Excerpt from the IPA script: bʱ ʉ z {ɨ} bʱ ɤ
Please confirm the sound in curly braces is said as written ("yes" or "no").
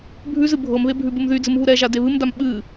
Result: yes